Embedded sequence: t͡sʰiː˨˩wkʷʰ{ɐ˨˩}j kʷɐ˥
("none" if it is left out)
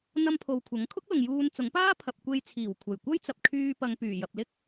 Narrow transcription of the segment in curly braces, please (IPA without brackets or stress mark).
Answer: ɐ˨˩